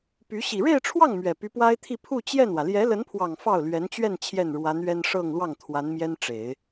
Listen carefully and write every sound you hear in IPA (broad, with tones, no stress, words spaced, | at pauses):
py˧˥ ɕi˨˩ɻe˥˧ɪ̯ʈ͡ʂʰwɑ˥˩ŋ mɥɛ˨˩py˧˥pwa˥ɪ̯t̪ʰi˥˧ pʰu˥˧ t͡ɕjɛ˥˩nwä˩ ljɛ˧˥lə˧˥npʰwɑ˨˩ŋ fɑ˥˩ʊ̯lɥɛ˧˥nt͡ɕɥɛ˥˧n t͡ɕʰjɛ˥˩nɻwa˧˥nɥɛ˥n ʂɤ˥˧ŋlwɑ˥˩ŋ t̪ʰwa˧˥nmjɛ˥nʈ͡ʂe˨˩˦ɪ̯